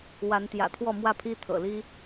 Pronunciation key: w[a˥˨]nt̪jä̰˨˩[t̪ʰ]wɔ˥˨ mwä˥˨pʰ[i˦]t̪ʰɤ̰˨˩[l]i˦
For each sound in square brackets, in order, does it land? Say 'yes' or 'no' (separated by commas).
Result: no, yes, yes, yes